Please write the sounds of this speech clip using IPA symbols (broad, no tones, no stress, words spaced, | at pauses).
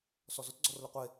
sɔzʊt ɡ͡ǀɔrlʊqʷe